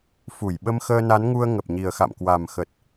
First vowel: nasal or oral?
oral